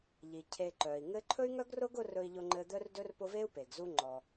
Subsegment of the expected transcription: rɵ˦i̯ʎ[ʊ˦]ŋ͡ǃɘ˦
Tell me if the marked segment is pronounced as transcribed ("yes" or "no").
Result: yes